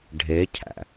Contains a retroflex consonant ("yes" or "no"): yes